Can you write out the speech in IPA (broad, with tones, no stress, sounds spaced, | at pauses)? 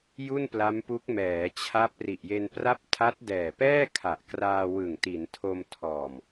j u˥˩ n p l a˦˥ m p u˦˥ k̚ m ɛː˩˦ t͡ɕʰ a˦˥ p̚ r i˨˩ ʔ j e˧ n p r a˥˩ p̚ tʰ a˦˥ t̚ d ɛː˨˩ p ɛː˥˩ kʰ a˨˩ ʔ k r aː˧ w ɯ˨˩ ŋ t i˩˦ n tʰ o˧ m tʰ ɔː˨˩ m